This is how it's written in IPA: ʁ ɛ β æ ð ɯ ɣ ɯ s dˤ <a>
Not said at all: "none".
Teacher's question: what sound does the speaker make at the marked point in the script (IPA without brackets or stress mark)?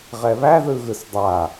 a